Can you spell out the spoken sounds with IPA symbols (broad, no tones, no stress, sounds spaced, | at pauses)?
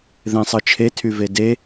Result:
ð ẽ sˤ ɯ t͡ʃʰ e tʰ y v e d e